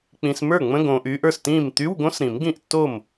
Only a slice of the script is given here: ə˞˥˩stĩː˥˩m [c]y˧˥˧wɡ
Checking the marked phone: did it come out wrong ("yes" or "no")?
yes